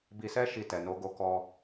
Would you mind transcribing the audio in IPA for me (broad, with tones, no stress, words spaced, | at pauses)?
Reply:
bi˧sɛ˦ ʃi˧tɛ˨ no˨˦ɡo˧kɔ˧